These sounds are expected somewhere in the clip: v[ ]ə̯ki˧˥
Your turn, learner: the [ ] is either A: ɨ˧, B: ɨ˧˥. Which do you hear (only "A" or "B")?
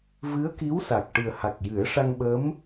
B